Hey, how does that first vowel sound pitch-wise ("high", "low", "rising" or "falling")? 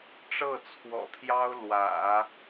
falling